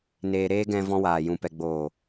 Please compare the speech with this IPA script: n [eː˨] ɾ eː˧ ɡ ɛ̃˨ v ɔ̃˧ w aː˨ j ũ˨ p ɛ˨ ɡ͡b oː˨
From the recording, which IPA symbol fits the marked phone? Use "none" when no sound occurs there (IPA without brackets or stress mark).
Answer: eː˨